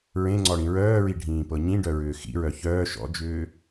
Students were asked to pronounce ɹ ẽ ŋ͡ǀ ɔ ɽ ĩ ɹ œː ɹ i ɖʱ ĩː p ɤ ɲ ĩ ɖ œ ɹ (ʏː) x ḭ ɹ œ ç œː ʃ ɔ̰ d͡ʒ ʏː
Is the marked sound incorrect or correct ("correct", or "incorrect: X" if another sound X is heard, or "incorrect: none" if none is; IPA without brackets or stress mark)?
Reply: correct